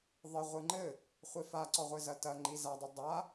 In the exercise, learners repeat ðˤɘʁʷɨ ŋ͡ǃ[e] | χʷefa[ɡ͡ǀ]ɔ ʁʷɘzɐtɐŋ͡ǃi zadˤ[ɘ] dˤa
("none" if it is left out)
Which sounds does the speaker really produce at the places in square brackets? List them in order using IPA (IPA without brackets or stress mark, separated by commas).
ɘ, ǀ, ɘ